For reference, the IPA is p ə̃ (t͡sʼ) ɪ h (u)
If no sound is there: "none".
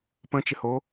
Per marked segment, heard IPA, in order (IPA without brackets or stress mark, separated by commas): t͡ʃ, o